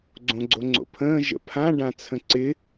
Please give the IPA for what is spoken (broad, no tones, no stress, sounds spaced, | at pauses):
ɡ͡ǀ õ ɡ͡ǀ o ŋ͡ǀ o̰ pʰ ə̃ː ʒ ə̰ pʰ ã ɖ ã t͡sʰ ə̃ ǀ ɪ